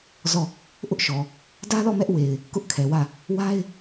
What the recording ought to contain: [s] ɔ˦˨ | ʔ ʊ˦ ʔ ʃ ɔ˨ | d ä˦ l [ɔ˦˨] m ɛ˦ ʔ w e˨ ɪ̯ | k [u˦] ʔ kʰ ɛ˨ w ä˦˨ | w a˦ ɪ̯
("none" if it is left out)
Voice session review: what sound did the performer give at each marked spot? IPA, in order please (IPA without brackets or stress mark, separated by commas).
z, ɔ˦˨, ʊ˦